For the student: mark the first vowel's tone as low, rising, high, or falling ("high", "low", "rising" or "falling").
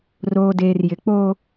low